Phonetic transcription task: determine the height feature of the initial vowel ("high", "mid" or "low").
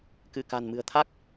high